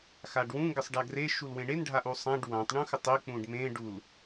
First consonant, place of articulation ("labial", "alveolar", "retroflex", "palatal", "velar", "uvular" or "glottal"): velar